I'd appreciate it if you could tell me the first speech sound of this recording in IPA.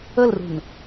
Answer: ə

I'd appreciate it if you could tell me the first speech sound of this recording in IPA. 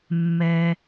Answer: mː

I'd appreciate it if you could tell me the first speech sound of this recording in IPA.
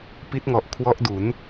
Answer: p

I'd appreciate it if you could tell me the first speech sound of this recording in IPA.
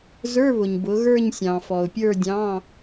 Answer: z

